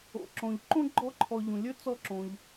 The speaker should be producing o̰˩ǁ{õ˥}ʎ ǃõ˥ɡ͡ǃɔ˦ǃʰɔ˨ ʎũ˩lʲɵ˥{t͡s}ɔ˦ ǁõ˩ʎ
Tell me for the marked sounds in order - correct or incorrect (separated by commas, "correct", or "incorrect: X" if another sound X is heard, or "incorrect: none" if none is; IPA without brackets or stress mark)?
incorrect: õ˩, correct